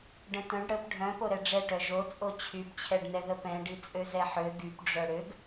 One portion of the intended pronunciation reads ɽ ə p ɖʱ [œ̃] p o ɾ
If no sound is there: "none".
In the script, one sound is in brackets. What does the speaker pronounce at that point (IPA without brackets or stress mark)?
œ̃